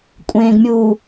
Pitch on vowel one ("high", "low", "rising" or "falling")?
low